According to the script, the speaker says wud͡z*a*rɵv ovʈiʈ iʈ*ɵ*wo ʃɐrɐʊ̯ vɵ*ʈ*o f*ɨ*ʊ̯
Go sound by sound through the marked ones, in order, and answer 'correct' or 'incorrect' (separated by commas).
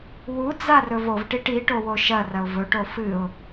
correct, incorrect, correct, correct